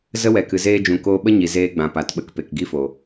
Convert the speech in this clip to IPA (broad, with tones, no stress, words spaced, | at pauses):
zə˦wɛ˨ kɨ˨zeː˧d͡ʒũ˨ koː˧ɓə˦ɲi˨ zeː˧ɡ͡bã˨pa˨t ɓə˧k pe˨k ɡi˧ fo˨